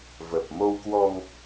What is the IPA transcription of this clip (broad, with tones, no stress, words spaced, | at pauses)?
və˨˩p̚mo˧wkwɔ˧ŋ